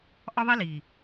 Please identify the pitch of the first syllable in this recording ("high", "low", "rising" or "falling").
high